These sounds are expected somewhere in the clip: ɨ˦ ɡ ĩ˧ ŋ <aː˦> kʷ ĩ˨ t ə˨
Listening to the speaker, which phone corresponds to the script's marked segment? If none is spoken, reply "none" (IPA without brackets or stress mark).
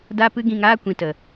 aː˦